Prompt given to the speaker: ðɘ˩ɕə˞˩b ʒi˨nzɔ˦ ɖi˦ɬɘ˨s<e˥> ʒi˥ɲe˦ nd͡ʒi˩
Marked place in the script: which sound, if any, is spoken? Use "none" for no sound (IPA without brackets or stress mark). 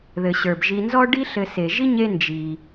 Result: e˩